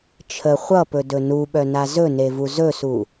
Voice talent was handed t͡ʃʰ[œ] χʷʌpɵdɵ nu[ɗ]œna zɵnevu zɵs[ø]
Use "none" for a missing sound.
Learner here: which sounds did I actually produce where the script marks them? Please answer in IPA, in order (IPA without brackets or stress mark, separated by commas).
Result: ə, ɓ, u